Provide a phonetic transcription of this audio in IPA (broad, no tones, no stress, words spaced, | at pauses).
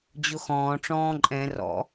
d͡ʑʊxɔ̃ː ʈ͡ʂɔ̃ːǃʼɛ̃ rɔ̰